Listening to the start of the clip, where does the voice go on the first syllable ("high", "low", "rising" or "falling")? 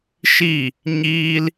falling